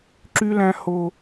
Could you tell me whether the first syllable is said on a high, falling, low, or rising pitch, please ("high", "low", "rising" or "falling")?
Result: high